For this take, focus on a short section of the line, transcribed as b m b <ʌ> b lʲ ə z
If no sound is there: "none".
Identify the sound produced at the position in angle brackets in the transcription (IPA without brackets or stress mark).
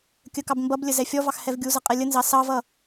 ʌ